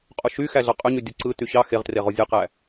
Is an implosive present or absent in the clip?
absent